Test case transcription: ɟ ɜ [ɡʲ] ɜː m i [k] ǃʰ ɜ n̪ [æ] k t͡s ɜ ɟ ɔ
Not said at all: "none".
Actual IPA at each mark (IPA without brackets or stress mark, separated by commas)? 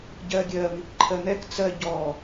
ɡʲ, k, ɛ